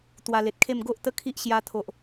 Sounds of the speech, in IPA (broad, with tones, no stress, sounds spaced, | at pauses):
t̪ w a˧ l e˨ t̚ kʰ e˥˧ m ɡ o˦ ʔ t̪ ə˦ kʰ i˦ ʔ ɕ j a˧ t̪ʰ o˨ ʔ